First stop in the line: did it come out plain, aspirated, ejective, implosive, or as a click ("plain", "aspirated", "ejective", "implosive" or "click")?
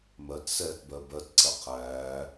plain